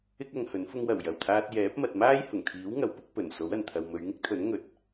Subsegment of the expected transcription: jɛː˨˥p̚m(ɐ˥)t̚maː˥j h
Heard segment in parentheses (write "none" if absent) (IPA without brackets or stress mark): ɐ˨